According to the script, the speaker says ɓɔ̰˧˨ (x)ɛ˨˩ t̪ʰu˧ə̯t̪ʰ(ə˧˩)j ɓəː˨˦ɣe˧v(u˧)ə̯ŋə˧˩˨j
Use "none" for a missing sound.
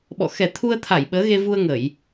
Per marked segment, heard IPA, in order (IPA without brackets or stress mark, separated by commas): x, a˧˩, u˧